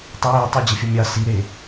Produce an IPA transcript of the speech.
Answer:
tˤ ə j e tˤ i d͡ʑ ə fʲ ə mʲ ɑ s i ɾ e

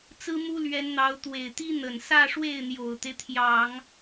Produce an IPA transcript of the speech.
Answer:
t͡s ɹ̩˥ m u˥ l ɥ ɛ˧˥ n n̪ ɑ˧˥ ʊ̯ t̪ w e˨˩ ɪ̯ t̪ i˥ n̪ ə˨˩ n s ä˥˧ ʂ w e˥˩ ɪ̯ n̪ j o˨˩ ʊ̯ t̪ e˦ ɪ̯ t̪ʰ j ɑ˨˩˦ ŋ

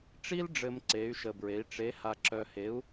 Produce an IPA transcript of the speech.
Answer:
ʈ͡ʂ i˥ l ɖ͡ʐ ɘ˧ m ǀ e˧˥ y̯ ʃ ə˧ b ɹ e˧˥ i̯ ʈ͡ʂ e˧˥ h a˧ ǁ œ˧ h e˧˥ u̯

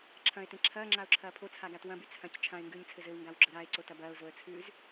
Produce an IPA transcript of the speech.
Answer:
ǁʰ ɐ̃ ɪ̯ t ẽ ǁʰ ɐː ŋ͡ǁ a ʊ̯ ǁʰ ɐː pʰ o t͡sʰ a ɡ a t w ɐ̃ b y t͡sʰ ɐ̃ c t͡ʃʰ ã ɪ̯ ŋ ɡ ʉː ɲ t͡sʰ ɘ z ɘ w ŋ ɡ a w ɡ͡ǁ ə ɾ a ɪ̯ ǀ o t ɐ b ɐː ʊ̯ z o ə̯ t͡sʰ ʉː z

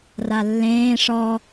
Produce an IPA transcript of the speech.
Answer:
r a lː ẽː ʂ ɔ

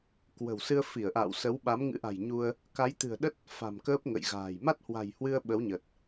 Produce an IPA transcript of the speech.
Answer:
k w ə̤˨˩ w s ɨ˧ ə̯ f i˧˩ ə̯ ʔ a̰ː˧˨ w s ə˨˦ w ɓ a˨˦ m ŋ ɨ̰˧˥ ʔ a̤˨˩ j ɲ u˧ ə̯ | k a˨˦ j t̪ ɨ̤˨˩ ə̯ ɗ ə˦˥ t̚ | f a̤˨˩ m k əː˦˥ p̚ ŋ ə̰˧˨ j ɣ a̤ː˨˩ j m a˦˥ t̚ h w a̤˨˩ j h w ɨ˧ ə̯ ɓ ə˨˦ w ɲ ə˨˩ t̚

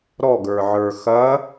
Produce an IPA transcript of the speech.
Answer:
ɾ ɔ ɡ ə˞ ʕ ə˞ x ɐ

